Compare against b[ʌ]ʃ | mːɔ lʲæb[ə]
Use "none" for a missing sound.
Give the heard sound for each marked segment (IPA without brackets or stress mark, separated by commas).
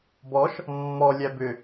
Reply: ɔ, ʏ